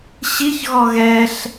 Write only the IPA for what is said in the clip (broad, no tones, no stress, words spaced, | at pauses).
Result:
ɕiçɣɔ ɣɛɬ